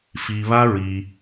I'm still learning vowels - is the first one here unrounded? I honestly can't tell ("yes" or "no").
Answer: yes